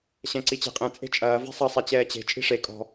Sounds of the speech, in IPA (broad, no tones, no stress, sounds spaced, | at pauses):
ɕ ɛ̃ ǀ i t͡ɕ e̤ qʼ ɛ̃ t͡sʼ e̤ t͡ʃʼ ɐː v e̤ sˤ ɐ sˤ ɛ t͡ɕ ɛː t͡ɕ e̤ t͡ʃʼ i̤ ʂ e kʼ ɔ̤